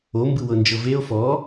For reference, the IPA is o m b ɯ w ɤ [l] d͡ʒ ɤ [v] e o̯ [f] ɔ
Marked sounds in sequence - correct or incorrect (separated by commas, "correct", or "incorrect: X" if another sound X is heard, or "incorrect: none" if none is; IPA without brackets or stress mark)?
incorrect: n, correct, correct